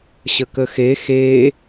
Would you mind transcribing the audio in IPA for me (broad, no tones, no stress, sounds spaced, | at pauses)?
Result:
ɕ ə k ə x e x e